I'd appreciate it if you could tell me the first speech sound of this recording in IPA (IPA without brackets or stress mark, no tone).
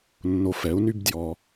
nː